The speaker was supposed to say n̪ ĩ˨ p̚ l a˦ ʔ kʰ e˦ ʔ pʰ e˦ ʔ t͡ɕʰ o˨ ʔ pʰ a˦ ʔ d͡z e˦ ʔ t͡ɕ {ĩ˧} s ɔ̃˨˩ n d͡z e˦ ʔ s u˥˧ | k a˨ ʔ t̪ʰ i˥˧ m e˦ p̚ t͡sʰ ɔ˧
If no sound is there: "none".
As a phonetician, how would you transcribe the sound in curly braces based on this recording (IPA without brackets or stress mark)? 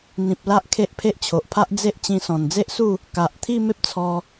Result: ĩ˧